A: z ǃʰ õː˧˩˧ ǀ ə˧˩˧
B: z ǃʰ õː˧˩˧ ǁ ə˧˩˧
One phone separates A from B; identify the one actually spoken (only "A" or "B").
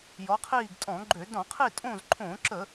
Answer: B